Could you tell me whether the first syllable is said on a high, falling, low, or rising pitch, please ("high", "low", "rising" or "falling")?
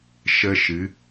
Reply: high